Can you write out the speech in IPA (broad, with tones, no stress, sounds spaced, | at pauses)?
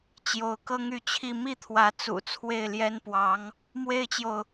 t͡ɕ j o˧˥ ʊ̯ k ɤ˥ ŋ y˥˧ t͡ɕʰ i˥˧ m i˥˩ t̪ʰ w ä˧˥ t͡s ṵ˨˩ t͡sʰ w e˥˩ ɪ̯ l j ɛ˥ n p w ɑ˧˥ ŋ | m w e˥ ɪ̯ t͡ɕ j o˨ ʊ̯